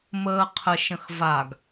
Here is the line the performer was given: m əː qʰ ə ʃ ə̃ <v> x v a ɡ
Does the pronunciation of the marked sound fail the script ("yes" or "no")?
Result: yes